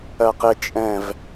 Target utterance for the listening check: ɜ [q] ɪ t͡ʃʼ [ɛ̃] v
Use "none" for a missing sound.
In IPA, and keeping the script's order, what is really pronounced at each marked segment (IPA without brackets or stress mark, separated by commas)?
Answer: q, ɛ̃